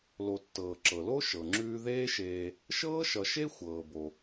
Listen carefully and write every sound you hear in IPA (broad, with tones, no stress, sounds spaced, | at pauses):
l o˨ tː ɤː˩ ǁ ɤ˩ l o˦ ʃ ɤ˩ ŋ͡ǁ ʉː˦ ð eː˦ ʃ eː˨ | ʃ ɤː˥ ʃ ʌ˨ ʃ e˥ xʷ ɤː˩ b o˩